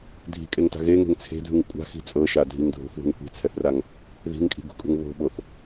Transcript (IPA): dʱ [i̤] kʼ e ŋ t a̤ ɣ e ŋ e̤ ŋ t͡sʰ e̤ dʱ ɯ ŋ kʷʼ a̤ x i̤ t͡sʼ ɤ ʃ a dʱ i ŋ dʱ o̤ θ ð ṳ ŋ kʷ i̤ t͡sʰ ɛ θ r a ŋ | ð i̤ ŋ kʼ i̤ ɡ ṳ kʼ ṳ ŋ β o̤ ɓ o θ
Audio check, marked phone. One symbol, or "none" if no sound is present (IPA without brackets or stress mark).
i̤